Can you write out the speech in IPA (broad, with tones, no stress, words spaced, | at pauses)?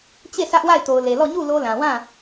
t͡ɕe˦˨ sʰä˦ʔ wa˦˨ɪ̯to˨ʊ̯le˨lɔ˦˨ ɲu˦˨ lo˦ lã˨wã˦˨